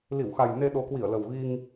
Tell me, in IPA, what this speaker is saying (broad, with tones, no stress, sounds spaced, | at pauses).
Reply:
l i˧˩ w x a˨˩ j n e˧ ɗ o˨˦ k w i˧˩ ə̯ l ə˨˩ w ɣ i˧ ŋ